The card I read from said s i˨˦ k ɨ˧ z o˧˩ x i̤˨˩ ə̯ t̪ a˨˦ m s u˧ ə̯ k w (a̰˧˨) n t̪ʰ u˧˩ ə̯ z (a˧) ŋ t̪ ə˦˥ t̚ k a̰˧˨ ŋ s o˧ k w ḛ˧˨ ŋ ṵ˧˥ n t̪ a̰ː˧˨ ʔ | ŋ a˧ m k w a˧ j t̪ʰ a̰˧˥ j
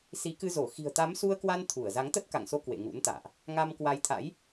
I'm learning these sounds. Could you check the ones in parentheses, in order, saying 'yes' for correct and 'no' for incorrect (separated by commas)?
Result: no, no